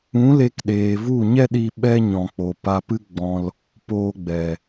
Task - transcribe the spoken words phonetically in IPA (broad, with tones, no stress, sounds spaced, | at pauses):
ũ˨˦ l e˧ k ɗ eː˨ v u˦˨ ɲ ɛ˦ ɗ i˧ ɓ ɛ˦ ɲ ɔ̃˨ k͡p o˨ p a˧ p ɨ˦ ɡ͡b ɔ̃˧ l | p oː˧ ɡ͡b ɛ˨